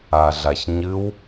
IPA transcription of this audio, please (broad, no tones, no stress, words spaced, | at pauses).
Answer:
aɮaçɲɨw